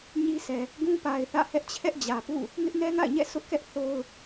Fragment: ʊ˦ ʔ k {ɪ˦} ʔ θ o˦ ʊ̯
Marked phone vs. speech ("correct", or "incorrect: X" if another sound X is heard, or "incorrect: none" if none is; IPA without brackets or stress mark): incorrect: ɛ˦